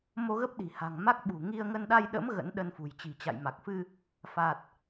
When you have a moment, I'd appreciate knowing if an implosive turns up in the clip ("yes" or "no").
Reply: yes